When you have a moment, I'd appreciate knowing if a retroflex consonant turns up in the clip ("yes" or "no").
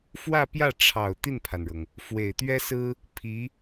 yes